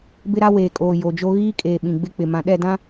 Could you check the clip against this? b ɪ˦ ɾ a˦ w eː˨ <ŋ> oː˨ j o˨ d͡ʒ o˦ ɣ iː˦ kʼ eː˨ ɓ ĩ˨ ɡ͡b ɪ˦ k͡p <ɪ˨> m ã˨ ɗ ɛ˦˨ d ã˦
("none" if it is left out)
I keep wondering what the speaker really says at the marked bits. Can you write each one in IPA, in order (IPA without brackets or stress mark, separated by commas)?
kʼ, ɪ˨